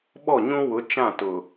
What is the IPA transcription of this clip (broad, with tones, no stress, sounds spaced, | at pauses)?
ɓ ɔ˦˨ ɲ ũ˦ w ʊ˨˦ t͡ʃ ã˦˨ t ʊ˨